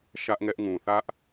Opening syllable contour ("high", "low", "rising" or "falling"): high